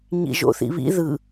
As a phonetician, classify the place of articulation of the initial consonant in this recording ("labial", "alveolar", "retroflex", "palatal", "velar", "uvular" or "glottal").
palatal